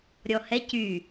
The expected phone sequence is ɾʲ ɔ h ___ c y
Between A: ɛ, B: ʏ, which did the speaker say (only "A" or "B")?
A